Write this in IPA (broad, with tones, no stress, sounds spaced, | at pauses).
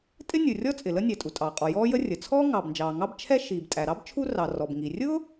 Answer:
tʼ ɪ˥ nʲ u˩ rʲ ɔ˥ t͡sʼ ɪ˩ l ə˥ nʲ æ˩ tʼ u˩ tʼ ɑː˩ qʼ ɔ˩ j ɔː˥ j ə˥ rʲ ə˩ t͡sʰ ɔː˥ ŋ ɑː˩ b n d͡ʒ ɑː˩ ŋ ɑ˥ b t͡ʃʰ ɛ˥ ʃ iː˩ b tʼ æ˩ ɾ ɑ˥ b t͡ʃʰ u˥ r ɑ˩ r ɔ˩ b ŋ i˩ rʲ ʊ˥